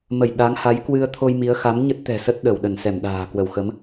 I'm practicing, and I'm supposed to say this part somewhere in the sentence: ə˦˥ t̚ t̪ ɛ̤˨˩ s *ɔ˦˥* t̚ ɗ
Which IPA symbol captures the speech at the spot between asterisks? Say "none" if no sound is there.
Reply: ə˦˥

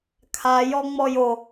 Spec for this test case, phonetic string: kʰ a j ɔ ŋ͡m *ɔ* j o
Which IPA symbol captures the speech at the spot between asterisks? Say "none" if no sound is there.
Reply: ɔ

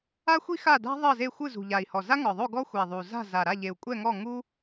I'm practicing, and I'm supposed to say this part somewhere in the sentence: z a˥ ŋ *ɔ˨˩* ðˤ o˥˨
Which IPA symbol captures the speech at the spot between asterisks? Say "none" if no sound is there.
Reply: ɔ˨˩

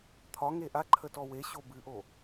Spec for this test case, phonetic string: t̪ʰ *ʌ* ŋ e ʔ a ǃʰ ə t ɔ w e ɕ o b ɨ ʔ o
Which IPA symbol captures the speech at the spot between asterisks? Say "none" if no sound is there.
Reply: ɒ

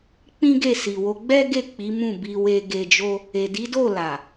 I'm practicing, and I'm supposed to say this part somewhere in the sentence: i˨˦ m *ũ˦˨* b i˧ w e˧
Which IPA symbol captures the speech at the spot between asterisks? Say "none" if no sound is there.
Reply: ũ˦˨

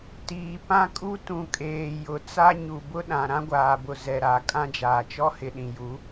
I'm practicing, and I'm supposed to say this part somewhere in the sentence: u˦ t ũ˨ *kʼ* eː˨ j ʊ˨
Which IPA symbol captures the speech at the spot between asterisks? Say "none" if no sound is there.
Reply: kʼ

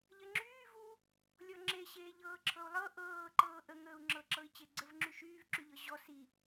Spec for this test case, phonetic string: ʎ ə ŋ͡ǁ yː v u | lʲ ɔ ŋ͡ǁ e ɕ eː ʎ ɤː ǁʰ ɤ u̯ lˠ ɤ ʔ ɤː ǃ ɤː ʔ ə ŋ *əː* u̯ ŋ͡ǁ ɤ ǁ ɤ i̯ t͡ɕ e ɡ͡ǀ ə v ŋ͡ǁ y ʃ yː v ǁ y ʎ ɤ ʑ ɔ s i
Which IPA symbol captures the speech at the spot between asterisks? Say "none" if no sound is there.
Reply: əː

